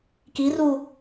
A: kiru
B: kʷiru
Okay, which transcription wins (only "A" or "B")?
A